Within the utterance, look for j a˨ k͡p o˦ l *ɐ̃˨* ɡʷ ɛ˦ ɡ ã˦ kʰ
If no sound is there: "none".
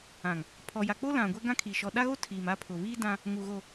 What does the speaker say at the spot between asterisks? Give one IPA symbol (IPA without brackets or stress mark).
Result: ã˨